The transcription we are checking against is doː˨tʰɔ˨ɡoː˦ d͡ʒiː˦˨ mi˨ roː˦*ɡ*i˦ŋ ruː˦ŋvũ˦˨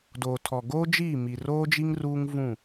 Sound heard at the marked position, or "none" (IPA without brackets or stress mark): d͡ʒ